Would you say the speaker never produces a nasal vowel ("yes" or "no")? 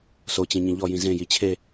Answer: no